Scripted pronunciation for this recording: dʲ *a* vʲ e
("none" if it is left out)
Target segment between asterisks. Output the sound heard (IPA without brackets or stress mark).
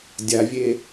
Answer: a